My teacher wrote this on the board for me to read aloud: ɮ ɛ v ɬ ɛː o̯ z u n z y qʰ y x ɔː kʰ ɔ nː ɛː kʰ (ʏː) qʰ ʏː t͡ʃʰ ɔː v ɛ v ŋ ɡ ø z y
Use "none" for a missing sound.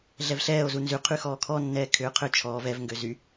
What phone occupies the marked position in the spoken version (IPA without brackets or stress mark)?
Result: ʏː